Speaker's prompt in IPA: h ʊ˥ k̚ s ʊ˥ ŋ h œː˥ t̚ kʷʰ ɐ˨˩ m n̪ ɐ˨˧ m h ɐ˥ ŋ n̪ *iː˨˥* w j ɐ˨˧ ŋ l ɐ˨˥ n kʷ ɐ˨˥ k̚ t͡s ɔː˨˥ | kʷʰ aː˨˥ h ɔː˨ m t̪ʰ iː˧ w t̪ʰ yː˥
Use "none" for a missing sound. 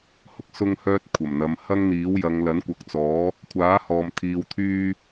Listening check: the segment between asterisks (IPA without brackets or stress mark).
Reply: iː˨˥